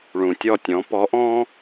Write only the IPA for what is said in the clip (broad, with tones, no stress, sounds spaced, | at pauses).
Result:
ɭ ũ˩ tʲ ɔ˥˩ tʲ ɔ̃˩˥ p ɔ˩˥ ʔ ɔ̃˥